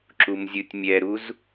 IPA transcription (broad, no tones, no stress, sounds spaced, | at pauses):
ǁ u m zʲ ɯ tʲ mʲ ɛ ɾ u z